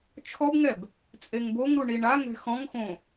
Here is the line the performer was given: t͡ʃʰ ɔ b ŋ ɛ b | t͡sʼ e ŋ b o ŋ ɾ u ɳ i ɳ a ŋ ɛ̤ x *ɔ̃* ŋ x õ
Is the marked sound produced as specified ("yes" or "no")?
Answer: yes